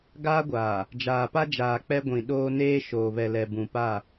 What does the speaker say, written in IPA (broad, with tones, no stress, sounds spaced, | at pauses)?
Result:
ɡ aː˦ ɡʷ aː˨ | d͡ʒ aː˨ p a˦ d͡ʒ aː˨ k͡p ɛ˦ ɡʷ ĩ˨ ɗ oː˦ n eː˦ ʃ oː˨ β ɛ˨ l ɛ˨ b ũ˨ p a˦˨